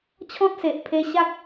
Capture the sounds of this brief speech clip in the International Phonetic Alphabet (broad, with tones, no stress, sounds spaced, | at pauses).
t͡ɕʰ ɔ̃˦ t̚ s e˨ ʔ pʰ e˧ ɕ a˦ k̚